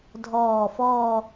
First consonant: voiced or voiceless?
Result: voiced